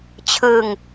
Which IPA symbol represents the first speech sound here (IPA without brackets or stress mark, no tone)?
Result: t͡ɕʰ